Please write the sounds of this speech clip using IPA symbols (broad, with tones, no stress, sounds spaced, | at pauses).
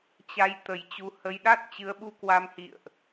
t͡ɕ a˧ j t̪ ə˨˩ j t͡ɕ u˨˦ h ə˧ j ɗ a˦˥ t̚ t͡ɕ ɨ˨˦ ə̯ ɓ u˧ k w a˧ m h ḭ˧˨ ə̯ ʔ